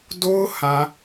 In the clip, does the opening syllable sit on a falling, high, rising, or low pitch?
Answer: high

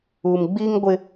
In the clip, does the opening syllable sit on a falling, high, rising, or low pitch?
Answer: low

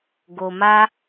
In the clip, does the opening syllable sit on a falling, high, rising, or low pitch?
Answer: low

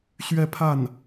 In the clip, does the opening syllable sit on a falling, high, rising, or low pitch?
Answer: falling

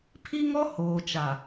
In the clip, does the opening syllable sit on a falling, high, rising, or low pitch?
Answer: high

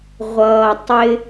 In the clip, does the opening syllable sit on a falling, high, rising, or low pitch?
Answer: low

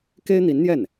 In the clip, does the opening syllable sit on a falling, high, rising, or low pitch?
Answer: high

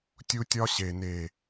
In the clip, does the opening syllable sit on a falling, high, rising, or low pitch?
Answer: high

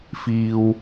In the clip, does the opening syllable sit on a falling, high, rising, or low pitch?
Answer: low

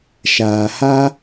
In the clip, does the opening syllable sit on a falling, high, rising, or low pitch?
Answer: low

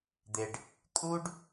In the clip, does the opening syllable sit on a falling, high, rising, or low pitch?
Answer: low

